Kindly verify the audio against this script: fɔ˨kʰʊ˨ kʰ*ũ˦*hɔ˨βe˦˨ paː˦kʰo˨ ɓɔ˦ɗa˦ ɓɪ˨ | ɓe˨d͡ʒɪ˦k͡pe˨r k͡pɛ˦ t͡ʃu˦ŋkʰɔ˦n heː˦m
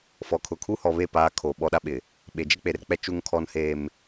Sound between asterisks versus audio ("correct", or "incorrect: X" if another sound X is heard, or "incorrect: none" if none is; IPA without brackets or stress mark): incorrect: u˦